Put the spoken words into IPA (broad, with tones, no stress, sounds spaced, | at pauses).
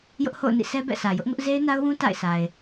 j ʊ˦ ʔ h o̰˦˨ ʊ̯ n ḭ˦˨ sʰ ɛ˦ b ɛ̰˦˨ sʰ ä˨ j ʊ˦ ʔ ŋ ʊ˦ ʔ z e˦ ɪ̯ n a˦ ʊ̯ w ũ˦ t a̰˦˨ ɪ̯ sʰ a˨ ɪ̯